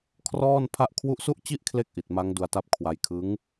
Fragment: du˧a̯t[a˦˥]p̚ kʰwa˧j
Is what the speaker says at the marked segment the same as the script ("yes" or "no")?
yes